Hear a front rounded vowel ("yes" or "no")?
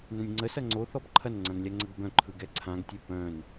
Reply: yes